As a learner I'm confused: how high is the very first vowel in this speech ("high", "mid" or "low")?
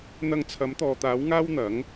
low